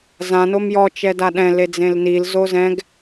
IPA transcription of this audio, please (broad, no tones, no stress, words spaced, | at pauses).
zã nomjɔ t͡ʃɛdaɗɛ̃ led͡zẽlnil zozɛ̃ɡ